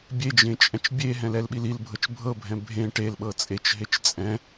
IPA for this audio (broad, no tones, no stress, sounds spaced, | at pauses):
bʲ e d͡ʒ ẽ t͡ʃʼ ɛ̃ t͡ʃ bʲ e ɦ ɛ̃ l ɛ l ɓ i l i l bʱ ɤ t͡ʃ bʱ ɤ bʱ ɛ̃ bʱ ẽ ʈ e l ɓ ɤ t͡sʼ e t͡ʃ ɦ e t͡ʃ t͡sʼ ɛ̃